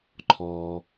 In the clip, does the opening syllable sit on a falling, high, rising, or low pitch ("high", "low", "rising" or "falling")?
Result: low